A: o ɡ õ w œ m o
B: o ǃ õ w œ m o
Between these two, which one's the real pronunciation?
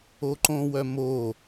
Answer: B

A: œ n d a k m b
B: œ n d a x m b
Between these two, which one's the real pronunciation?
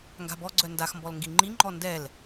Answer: B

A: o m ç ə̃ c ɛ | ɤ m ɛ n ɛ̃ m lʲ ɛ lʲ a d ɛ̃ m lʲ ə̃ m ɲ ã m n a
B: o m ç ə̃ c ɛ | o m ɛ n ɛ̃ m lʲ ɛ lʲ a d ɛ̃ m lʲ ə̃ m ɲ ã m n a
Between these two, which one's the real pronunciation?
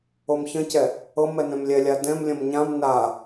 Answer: A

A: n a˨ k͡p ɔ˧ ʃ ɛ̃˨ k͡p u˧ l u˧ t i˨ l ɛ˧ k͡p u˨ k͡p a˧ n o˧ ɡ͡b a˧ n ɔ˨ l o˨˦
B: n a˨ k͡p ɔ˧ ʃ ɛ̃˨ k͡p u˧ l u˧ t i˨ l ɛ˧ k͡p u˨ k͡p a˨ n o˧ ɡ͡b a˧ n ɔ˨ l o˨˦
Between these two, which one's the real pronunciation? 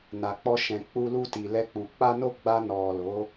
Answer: A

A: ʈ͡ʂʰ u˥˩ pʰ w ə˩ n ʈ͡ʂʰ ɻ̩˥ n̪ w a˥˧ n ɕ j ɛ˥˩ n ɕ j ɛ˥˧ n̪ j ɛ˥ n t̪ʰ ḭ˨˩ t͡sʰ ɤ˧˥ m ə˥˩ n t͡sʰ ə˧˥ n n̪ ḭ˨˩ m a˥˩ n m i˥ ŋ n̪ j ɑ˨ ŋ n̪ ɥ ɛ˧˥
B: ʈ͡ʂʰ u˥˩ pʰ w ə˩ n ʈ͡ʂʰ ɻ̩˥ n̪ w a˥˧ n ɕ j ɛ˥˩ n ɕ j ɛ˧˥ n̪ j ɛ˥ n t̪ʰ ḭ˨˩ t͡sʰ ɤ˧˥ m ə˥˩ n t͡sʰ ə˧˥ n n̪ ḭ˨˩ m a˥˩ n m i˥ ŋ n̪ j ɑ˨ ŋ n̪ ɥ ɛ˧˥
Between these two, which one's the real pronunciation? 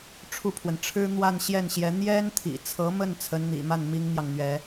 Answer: B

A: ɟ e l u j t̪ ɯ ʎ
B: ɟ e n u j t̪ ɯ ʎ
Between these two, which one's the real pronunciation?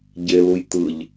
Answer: A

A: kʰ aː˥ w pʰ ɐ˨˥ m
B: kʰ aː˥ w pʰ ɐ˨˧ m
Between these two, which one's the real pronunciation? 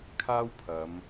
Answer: B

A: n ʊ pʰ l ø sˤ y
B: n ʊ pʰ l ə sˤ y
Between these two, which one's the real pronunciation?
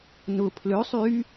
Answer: A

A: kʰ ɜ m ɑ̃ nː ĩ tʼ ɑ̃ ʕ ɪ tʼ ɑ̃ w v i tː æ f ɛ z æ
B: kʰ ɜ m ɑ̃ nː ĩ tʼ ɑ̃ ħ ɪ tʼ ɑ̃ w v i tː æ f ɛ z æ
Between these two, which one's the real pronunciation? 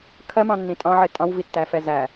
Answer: A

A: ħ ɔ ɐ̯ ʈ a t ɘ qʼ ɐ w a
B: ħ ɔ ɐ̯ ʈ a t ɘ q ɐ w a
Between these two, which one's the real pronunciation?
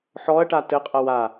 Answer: A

